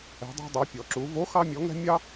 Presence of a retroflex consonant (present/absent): absent